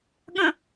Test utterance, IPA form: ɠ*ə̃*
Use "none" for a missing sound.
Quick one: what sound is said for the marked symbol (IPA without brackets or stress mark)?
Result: ə̃